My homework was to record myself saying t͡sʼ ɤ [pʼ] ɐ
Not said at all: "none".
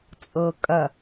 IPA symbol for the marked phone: kʼ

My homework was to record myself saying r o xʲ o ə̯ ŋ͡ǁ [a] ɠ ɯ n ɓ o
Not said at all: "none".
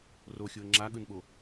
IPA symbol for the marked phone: a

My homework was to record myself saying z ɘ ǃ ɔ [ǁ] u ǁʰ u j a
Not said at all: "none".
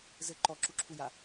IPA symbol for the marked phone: ǁ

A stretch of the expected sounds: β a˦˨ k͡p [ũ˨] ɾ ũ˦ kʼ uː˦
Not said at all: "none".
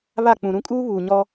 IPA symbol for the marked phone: ũ˨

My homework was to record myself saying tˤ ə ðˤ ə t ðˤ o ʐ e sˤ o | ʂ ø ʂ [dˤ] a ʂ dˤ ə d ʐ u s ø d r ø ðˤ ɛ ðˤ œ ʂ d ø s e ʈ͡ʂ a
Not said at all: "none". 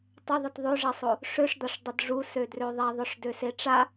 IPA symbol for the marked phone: d̪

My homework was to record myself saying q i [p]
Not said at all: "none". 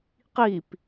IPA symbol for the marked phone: p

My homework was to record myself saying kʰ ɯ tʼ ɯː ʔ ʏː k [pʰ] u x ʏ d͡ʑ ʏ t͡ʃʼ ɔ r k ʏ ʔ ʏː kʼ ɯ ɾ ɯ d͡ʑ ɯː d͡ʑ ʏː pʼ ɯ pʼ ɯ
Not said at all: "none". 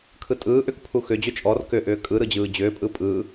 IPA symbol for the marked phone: pʰ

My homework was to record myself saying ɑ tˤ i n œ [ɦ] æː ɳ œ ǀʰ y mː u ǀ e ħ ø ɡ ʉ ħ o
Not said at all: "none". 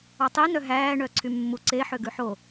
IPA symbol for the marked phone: ɦ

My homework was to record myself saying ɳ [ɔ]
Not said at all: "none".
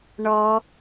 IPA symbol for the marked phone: ɔ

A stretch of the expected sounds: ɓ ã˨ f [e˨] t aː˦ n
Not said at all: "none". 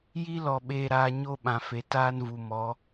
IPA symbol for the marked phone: e˨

